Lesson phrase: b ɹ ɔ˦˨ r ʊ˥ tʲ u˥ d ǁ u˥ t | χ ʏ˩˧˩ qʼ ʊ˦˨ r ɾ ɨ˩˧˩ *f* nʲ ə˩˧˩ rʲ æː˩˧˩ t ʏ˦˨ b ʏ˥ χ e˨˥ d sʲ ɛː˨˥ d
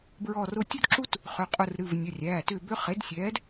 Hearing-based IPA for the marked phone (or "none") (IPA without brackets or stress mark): v